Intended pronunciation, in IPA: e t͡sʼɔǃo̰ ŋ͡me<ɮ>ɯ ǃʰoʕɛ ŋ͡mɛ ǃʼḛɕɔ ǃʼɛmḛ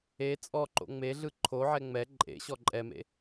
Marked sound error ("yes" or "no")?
no